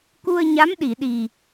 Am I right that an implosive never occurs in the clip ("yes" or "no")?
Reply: no